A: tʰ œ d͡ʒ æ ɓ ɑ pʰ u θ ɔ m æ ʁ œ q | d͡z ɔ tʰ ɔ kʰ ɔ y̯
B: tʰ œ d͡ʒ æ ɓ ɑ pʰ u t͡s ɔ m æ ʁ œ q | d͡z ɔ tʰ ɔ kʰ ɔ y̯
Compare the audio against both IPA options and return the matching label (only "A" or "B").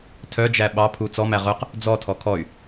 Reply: B